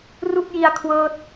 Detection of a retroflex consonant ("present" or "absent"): absent